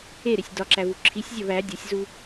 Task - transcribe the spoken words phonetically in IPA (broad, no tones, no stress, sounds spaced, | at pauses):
e ɾ e sʲ d ɒ ǁ æ v u ǁʰ i sʲ zʲ ɒ v æ dʲ ɒ sʲ z u